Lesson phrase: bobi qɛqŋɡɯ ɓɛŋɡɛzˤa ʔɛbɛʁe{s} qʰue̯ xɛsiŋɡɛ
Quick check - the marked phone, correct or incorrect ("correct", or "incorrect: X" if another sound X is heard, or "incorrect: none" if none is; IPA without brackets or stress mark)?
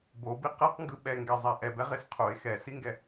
correct